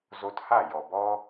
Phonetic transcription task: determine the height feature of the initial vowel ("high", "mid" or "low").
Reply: mid